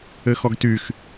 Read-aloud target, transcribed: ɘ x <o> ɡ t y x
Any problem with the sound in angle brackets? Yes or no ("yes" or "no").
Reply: yes